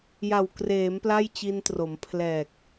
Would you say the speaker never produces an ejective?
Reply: yes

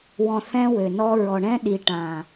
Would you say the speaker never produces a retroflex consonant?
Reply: no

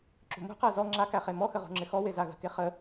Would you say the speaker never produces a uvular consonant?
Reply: no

